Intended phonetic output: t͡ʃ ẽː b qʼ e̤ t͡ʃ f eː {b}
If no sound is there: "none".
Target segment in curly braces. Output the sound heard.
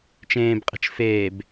b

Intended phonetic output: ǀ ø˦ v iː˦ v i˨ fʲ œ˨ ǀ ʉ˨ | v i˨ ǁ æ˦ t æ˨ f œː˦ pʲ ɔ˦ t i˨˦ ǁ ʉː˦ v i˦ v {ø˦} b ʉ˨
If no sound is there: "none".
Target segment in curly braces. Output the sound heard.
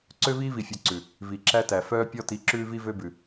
ø˦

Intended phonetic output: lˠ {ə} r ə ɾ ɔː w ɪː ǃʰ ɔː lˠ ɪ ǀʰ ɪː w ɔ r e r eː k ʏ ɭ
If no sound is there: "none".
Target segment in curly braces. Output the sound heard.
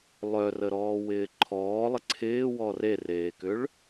œ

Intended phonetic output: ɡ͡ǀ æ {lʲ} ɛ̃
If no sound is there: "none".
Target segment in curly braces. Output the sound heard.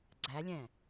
lʲ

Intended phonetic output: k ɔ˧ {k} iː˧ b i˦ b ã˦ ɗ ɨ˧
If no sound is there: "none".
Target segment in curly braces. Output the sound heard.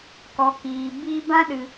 k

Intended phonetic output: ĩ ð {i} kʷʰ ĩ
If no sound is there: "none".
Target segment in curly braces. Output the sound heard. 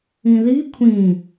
i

